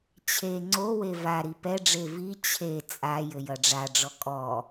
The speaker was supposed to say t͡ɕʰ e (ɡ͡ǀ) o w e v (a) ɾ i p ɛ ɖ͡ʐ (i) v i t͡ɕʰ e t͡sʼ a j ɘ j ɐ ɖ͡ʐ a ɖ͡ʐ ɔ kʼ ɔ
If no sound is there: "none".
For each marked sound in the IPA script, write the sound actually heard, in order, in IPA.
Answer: ŋ͡ǀ, a, e

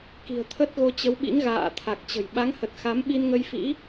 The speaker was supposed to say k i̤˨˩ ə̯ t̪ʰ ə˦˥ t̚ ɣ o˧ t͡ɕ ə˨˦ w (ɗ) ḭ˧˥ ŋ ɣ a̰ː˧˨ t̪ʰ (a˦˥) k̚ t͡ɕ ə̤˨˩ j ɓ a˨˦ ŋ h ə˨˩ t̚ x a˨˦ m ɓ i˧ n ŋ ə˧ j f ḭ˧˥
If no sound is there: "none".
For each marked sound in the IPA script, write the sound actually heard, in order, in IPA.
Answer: ɓ, a˨˩

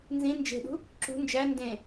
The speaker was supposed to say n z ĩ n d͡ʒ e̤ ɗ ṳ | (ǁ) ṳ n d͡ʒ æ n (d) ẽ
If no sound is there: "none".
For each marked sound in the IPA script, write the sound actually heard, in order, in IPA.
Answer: ǁ, d

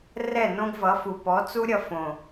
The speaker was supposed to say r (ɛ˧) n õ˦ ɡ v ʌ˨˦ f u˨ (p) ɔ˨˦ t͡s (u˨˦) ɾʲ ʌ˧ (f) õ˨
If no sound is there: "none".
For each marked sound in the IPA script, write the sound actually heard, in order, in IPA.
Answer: ɛ˦˨, p, u˦, f

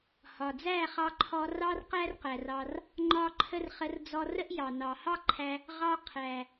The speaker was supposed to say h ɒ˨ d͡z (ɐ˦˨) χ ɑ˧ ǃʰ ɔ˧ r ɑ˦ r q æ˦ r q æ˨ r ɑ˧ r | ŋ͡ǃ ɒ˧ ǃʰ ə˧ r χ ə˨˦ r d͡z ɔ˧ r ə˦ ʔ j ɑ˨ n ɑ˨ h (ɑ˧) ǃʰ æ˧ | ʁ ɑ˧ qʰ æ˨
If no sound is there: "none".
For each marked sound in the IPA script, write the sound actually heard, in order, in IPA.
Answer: æ˦˨, ɑ˦

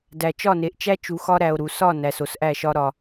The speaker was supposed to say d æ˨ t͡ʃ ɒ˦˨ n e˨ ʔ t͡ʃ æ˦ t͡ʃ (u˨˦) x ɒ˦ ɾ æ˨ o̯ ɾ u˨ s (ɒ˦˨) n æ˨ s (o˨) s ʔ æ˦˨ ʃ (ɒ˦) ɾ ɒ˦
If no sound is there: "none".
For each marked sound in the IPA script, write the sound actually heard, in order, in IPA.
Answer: u˨˦, ɒ˦˨, o˨, ɒ˦

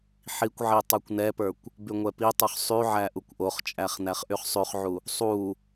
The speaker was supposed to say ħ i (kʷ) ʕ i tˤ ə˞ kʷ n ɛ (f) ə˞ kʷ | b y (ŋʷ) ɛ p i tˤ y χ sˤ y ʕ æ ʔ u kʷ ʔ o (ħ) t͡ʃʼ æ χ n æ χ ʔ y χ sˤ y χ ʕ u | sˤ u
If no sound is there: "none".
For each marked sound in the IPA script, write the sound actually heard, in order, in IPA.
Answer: kʷ, p, ŋʷ, χ

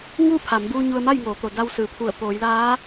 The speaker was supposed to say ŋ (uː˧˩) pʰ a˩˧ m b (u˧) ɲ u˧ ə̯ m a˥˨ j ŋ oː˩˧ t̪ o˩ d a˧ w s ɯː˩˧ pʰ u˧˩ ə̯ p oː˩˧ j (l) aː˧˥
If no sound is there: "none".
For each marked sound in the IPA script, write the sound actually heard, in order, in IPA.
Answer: uː˥˨, uː˧, l

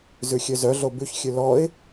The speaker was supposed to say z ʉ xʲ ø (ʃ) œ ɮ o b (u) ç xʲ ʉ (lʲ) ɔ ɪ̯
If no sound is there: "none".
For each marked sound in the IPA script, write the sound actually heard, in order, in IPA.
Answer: z, ʉ, l

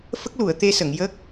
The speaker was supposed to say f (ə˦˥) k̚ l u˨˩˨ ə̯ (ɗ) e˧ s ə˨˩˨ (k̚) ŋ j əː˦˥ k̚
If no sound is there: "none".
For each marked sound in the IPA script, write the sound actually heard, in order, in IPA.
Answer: ə˦˥, t̪, none

